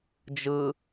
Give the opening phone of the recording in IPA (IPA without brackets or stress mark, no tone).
d͡ʒ